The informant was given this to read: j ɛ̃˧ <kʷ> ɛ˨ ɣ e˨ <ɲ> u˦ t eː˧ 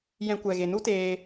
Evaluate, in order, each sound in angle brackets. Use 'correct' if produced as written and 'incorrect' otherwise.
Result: correct, incorrect: n

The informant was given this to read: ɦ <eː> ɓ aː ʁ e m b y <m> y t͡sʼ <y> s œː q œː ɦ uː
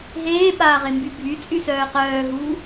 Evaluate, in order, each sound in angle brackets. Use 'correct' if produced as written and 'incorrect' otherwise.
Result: correct, incorrect: bʱ, correct

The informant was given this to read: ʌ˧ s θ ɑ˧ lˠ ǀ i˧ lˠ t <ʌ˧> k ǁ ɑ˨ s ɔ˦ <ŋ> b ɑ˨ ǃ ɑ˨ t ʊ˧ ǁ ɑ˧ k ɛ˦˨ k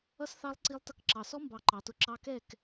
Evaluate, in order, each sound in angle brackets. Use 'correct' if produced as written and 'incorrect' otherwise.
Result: correct, incorrect: m

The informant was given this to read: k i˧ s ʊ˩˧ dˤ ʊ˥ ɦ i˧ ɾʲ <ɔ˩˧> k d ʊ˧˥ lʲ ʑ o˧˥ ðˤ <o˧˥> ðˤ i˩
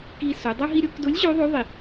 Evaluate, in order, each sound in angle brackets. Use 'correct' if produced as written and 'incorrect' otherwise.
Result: incorrect: ʊ˩˧, correct

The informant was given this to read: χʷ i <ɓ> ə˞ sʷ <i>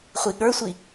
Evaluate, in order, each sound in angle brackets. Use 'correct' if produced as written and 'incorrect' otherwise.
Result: incorrect: ɠ, correct

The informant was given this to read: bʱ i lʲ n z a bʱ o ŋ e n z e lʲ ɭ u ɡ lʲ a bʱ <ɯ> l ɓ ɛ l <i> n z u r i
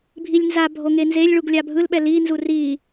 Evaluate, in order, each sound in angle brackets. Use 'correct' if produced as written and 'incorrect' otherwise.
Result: correct, correct

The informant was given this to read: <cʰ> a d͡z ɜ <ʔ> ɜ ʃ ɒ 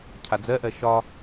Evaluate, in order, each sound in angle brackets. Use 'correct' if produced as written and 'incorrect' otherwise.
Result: correct, correct

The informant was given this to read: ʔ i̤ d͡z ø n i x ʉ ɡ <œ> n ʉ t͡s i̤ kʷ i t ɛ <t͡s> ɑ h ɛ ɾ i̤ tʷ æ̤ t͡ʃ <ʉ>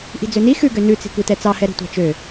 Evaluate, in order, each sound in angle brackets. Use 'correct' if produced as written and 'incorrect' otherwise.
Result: incorrect: ø, correct, incorrect: ø

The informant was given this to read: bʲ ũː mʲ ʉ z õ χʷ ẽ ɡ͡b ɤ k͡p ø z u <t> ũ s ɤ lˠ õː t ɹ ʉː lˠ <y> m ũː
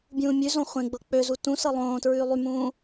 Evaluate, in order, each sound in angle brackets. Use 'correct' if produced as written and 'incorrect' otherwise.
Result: correct, correct

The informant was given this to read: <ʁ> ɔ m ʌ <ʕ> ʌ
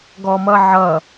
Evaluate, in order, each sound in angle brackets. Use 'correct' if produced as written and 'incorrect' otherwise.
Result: incorrect: ɡ, correct

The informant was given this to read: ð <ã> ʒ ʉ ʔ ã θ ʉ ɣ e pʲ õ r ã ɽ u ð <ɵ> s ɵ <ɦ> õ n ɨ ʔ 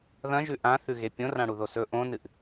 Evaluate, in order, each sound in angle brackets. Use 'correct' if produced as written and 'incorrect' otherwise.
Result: incorrect: ɐ̃, incorrect: o, incorrect: ʔ

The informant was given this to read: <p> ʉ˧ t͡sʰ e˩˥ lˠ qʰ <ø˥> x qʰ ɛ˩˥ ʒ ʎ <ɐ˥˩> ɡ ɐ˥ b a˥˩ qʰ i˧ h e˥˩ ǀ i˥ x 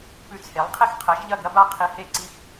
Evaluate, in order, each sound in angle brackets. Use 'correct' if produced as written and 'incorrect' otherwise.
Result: correct, incorrect: e˥, correct

